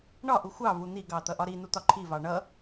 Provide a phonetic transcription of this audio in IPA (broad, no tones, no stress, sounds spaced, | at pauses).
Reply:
ɳ ɒ ʔ u xʷ ɑ v u n̪ i ɡ ɑ t̪ ʌ ʔ ɒ ɾ i n̪ u t̪ ɒ ǃʰ i v ɑ ɳ ʌ